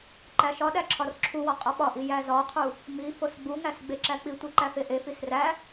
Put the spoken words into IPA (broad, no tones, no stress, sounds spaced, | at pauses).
ǃ æ ʃ ɒ ɗ æ ǁʰ ɒ r ǁʰ u w ɒ qʼ ɒ ɓ ɒ ʔ i j æ z ɒ qʰ u | m i f o s ɡ͡b u ŋ æ s ɡ͡b e ǁ æ k͡p i tʷ i ǃ æ f e ʔ e f i s r æ